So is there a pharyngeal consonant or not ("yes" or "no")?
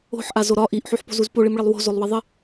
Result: yes